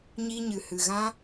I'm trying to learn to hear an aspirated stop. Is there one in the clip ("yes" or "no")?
no